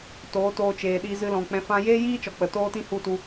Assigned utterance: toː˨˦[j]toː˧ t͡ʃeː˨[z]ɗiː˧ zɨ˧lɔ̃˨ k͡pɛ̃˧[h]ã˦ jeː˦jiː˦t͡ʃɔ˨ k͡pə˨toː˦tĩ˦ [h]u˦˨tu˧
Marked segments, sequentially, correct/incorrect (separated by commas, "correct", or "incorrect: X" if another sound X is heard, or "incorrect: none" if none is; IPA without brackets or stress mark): incorrect: none, incorrect: none, incorrect: f, correct